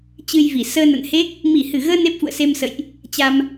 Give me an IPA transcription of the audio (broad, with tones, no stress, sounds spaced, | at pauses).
t͡ɕ ɨ˧ j v i˧˩ s əː˧ n ə̰˧˨ n h e˦˥ k̚ | m i˧˩ h ɨ˧˩ ɣ əː˧ n e˦˥ p̚ f ṵ˧˨ ə̯ s e˧ m s ə̰˧˨ j ʔ | t͡ɕ a˧ m